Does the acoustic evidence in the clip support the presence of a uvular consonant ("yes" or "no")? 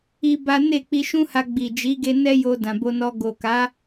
no